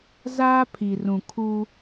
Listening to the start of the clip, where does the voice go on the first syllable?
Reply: high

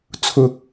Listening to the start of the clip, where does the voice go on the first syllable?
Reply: low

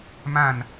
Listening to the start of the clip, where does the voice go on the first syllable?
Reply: falling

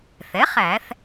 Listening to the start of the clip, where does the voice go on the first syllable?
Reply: rising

